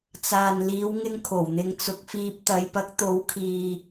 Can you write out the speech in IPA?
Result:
t͡saː˨nliː˨˧wŋɪ˧ŋ kʰo˨˩wn̪ɪ˧ŋt͡sʊ˨˥k̚fiː˧p̚ t̪ɐ˨˧jpɐ˨˥k̚ t̪o˨˥wkʰiː˨

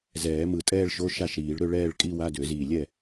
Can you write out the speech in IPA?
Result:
zɛː˨˩˦ mɯ˧˩tʼɛː˥˧ɭʃo˧˥˧ ʃa˥˩ʃɾiː˨˩˦ɭɾø˥˧ ɭɛː˥˧ɭ kʼi˥˧wa˧˥˧dø˨˩˦ziː˧˩ lʲɛ˥˩

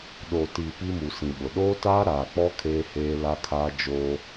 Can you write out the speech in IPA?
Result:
ɗo˨ti˨ pi˦mu˨sĩ˨ɓʊ˨ ɗoː˦taː˦ ɾaː˨k͡pɔ˦ kʰeː˦heː˦ la˦kʰaː˦ d͡ʒoː˦

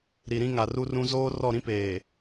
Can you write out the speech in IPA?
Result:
ɾi˨ɾĩ˦ŋa˨ ru˦rũ˦ zoː˦rɔ˦˨ɾĩ˦peː˨

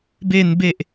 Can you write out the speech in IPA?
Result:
be˨˩n be˨˩ʔ

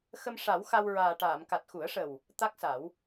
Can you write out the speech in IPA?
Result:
xə˧mʂa˨˩˦w xa˧wɹaː˨˩ʈaː˨˩˨m ka˨˩t̚xu˨˩˦ə̯ʂə˨˩w | t̪a˦˥k̚sa˨˩˦w

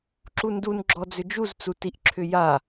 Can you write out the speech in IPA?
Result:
ǁundunɡ͡ǁɔ d͡zʏd͡ʒuzt͡su tiʔǁʰʏja

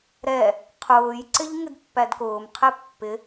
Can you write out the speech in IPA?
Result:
ɾɛ | qʰʊːjǀɪʎ ŋɪdpːædkʊːmqʰɛ pːɪ

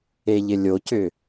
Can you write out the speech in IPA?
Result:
eʎɪlʲocʏ

